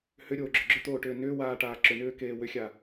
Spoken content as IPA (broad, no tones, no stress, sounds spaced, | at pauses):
h ʏ ɾʲ oː ɡ͡ǁ ʏ ɡ͡ǁ ʏ t̪ oː ʈ ʏː n ʏː w aː ʈ aː ǁ ʏ n ʏː k eː w ʏ xʲ a